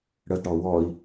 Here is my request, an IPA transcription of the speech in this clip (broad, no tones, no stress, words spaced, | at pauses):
ɽədɽɔ wɔi̯